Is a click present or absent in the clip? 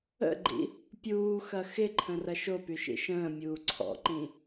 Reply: present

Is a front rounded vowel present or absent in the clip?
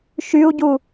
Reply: present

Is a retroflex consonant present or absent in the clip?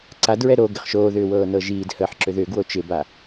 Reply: absent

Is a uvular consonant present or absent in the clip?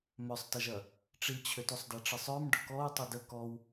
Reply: absent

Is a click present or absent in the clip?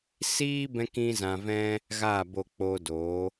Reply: absent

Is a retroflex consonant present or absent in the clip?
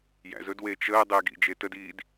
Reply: absent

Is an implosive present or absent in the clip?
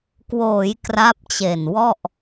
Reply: absent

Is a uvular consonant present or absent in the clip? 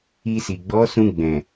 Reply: absent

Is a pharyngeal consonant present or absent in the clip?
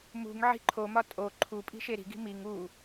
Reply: present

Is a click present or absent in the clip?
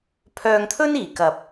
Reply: absent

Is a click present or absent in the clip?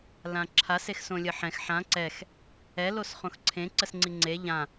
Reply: present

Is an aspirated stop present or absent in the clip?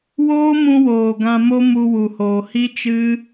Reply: absent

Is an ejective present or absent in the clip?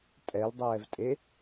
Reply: present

